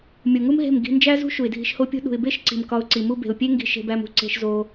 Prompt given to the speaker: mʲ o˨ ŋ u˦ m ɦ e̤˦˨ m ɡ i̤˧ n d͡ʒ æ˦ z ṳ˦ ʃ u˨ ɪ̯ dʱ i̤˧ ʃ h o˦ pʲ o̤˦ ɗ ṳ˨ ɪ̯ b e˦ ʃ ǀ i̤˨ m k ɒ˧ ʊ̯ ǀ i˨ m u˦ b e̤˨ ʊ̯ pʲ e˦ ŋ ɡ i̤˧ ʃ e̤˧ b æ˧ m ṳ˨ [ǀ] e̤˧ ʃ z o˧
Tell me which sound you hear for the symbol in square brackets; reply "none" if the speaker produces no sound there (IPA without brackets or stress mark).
ǀ